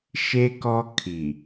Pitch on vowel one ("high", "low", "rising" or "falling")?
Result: high